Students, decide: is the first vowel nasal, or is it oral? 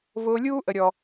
oral